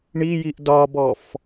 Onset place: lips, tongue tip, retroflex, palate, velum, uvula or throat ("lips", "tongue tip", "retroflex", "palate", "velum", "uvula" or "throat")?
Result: retroflex